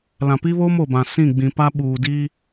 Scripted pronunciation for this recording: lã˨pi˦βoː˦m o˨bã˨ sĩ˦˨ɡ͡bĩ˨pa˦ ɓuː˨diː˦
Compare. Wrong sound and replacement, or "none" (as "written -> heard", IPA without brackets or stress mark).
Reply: none